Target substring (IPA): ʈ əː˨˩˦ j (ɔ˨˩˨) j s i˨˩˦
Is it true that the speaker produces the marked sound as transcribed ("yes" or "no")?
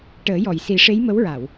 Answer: yes